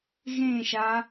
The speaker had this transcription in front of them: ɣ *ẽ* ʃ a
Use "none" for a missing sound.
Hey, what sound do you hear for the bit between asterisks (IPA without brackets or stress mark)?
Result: ẽ